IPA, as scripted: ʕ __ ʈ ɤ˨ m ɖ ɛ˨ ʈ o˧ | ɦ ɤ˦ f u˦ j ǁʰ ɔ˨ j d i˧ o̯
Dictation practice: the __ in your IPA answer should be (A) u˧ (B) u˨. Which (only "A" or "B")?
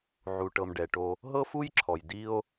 B